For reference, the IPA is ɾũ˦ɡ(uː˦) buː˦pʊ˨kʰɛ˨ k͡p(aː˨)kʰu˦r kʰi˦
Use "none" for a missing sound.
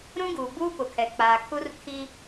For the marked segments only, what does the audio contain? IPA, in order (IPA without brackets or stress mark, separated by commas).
uː˨, aː˨